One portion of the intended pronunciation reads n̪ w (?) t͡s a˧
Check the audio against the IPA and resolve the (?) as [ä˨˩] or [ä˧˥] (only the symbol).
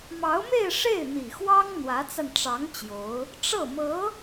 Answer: ä˧˥